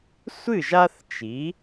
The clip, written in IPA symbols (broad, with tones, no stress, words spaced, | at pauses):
sʷɨ˥˩ʒ a˥θt͡ʃi˩˥